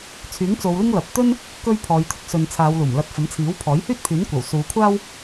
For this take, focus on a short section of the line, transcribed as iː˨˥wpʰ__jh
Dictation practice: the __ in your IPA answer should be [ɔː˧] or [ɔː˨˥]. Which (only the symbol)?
ɔː˨˥